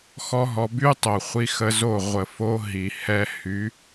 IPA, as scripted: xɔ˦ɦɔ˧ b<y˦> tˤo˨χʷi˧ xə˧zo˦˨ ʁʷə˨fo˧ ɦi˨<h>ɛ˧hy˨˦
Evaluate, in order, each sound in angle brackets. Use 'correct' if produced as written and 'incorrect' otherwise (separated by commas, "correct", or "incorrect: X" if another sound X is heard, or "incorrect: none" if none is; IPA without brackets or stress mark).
correct, correct